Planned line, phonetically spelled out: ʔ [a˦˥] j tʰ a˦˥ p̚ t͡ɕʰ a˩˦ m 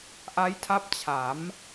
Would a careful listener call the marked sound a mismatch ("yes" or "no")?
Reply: no